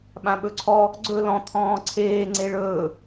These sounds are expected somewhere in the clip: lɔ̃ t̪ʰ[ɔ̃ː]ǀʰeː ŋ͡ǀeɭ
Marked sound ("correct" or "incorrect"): correct